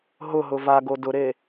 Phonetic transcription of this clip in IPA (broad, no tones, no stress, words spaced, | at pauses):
ɦʊɦʊ vaɡo dʊɾe